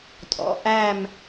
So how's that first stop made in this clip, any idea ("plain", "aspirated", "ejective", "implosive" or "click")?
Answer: ejective